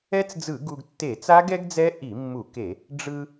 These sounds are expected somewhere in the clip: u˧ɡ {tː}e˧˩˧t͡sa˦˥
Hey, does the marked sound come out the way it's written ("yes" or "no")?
yes